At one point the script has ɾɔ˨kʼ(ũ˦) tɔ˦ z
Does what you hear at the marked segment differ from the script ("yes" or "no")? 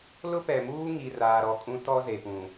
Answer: no